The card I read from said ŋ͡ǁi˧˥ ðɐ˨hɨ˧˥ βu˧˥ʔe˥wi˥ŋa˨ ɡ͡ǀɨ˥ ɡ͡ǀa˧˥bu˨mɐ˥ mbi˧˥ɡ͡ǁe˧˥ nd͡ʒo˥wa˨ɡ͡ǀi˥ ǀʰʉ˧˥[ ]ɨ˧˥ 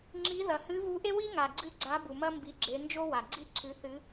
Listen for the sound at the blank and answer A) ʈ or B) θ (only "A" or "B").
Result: B